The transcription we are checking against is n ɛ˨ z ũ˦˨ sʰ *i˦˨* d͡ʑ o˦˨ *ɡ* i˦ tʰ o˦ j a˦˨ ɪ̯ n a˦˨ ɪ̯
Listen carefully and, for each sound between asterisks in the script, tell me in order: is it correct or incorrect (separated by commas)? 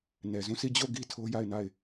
correct, correct